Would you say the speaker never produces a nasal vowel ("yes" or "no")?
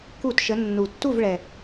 yes